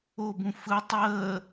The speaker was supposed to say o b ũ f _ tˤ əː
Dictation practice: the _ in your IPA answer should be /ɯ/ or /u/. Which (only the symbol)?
ɯ